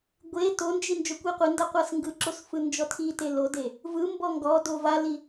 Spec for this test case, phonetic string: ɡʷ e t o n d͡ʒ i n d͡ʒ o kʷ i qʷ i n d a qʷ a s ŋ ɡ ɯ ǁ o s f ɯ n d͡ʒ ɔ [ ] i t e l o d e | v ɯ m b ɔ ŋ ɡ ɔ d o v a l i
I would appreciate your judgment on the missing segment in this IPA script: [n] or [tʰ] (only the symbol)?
tʰ